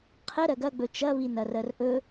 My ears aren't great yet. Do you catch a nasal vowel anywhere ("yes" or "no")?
no